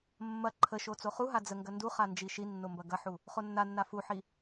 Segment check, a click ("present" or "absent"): present